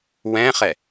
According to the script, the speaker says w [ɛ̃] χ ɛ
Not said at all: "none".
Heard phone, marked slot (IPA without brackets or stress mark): ɛ̃